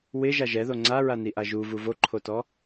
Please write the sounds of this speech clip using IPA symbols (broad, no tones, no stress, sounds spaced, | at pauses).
w ɪ ʒ a ʒ ɛ ð o ŋ͡ǀ a ɹ a n i ʔ a ʒ u v u v o ǃʰ o t ɔ